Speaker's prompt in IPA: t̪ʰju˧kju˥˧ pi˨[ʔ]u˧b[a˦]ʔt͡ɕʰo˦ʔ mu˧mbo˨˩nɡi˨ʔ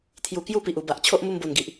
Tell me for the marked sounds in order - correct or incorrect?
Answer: correct, incorrect

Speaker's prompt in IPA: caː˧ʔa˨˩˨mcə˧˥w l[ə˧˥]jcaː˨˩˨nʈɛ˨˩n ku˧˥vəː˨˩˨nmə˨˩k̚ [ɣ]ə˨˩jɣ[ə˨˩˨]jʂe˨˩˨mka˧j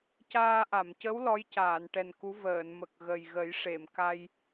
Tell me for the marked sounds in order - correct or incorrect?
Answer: incorrect, correct, incorrect

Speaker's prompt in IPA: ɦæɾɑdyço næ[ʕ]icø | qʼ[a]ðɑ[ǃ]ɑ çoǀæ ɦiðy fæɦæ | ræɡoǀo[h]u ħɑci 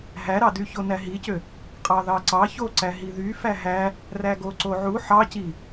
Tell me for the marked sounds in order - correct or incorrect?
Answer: incorrect, incorrect, incorrect, incorrect

